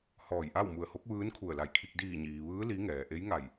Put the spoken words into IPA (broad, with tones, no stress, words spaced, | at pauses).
hɔː˧˩jʔa˥˨wmu˧˩ə̯ho˧˥k̚ ʋɯː˧˥nkʰu˧˩ə̯la˧˩jkʰi˧k̚ diː˧˩ɲiː˩ ʋɯː˧˥ li˧˥ŋɛː˩ ʔe˧˥jŋa˧˩j